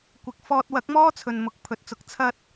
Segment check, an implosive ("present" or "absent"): absent